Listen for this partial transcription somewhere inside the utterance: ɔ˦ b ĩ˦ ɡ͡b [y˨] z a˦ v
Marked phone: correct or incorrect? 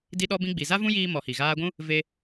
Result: incorrect